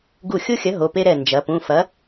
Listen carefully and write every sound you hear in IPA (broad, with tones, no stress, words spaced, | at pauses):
ɡu˧˩xʲo˦xʲɐ˨˥ ɦo˩˧˩ pe˦ɾɛ˧˩ nd͡ʒɐ˩˧pũ˩˧˩ fɐ˨˥